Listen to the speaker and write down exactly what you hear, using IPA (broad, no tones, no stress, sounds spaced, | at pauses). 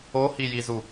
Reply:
o h i j i z u